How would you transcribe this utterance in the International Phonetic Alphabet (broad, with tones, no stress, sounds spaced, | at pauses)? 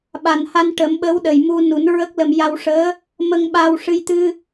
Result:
ɓ a˨˩ n h a˧ n ʈ ə˨˩˦ m ɓ ə˧˥ w ɗ ə˨˩ j m u˧ n u˨˩˦ n ɹ ə˦˥ k̚ l ə˧ m j a˧ w ʂ əː˧˥ | m ə˧ ŋ ɓ a˧ w ʂ ɨ˧ j t̪ ɨ˧